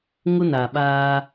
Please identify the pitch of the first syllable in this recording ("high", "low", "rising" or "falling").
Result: high